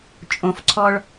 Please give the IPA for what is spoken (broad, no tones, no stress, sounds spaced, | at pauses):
t͡ʃʼ õ f ǀʰ ɔ ɭ